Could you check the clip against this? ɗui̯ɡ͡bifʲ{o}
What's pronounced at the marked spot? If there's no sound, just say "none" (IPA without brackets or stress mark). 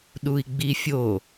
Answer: o